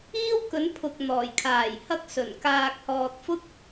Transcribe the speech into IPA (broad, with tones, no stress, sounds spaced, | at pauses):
iː˥ w k ɵ˨˧ n pʰ ʊ˨ k̚ n̪ ɔː˨˩ j kʰ aː˨˩ j h ɐ˥ k̚ s ɵ˨˩ n k aː˧ k̚ h ɔː˧ t̚ f ʊ˥ k̚